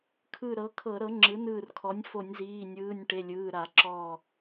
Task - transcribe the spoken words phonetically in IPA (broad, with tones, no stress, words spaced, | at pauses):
kʰɯ˧˩ɾɤ˩˥kʰɤ˧˩˧ɾɤ˩˥ ŋ͡ǁɯ˩˥nɯː˧˩rkʰɔ˩˥nʲ fo˧˩˧nʲziː˩˧˩nʲɯː˩˧˩nʲ ʈe˩˧˩lʲɯː˩˧˩ɾa˧˩˧ǁɔː˧˩